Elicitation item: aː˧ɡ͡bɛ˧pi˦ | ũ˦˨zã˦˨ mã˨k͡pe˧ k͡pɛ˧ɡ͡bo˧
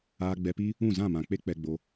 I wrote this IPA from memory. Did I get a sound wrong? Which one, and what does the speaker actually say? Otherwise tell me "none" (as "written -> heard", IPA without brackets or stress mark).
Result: none